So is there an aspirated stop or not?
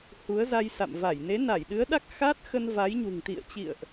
no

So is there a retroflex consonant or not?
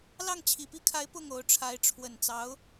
yes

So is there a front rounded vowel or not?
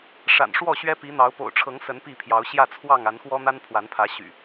yes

